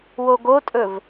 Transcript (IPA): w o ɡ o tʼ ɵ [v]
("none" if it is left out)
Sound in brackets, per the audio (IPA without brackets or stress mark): v